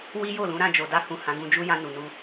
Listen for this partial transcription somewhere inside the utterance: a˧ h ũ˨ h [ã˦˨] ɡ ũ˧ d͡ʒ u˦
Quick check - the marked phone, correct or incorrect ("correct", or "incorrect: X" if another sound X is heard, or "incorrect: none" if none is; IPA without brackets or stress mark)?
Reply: incorrect: ã˨˦